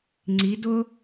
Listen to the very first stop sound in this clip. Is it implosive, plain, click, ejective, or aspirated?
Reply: click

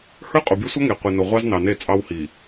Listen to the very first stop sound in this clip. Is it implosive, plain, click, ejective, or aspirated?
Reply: ejective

